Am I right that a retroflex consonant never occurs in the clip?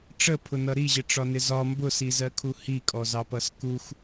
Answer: no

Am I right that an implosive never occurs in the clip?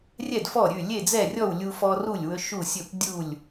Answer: yes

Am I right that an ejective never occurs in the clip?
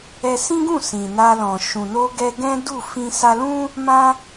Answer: yes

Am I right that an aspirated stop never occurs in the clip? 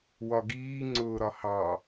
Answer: yes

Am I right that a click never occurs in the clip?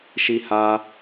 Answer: yes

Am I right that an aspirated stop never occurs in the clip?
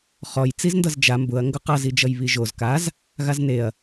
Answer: yes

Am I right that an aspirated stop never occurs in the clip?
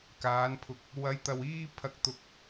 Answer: no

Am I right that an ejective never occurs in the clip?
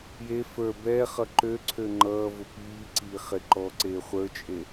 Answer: no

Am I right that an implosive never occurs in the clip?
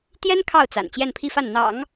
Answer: yes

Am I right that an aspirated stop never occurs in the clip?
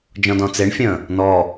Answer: yes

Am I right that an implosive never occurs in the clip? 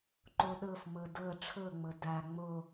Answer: no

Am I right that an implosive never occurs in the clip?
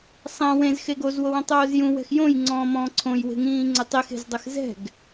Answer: yes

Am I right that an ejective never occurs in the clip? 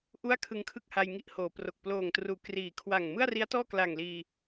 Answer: yes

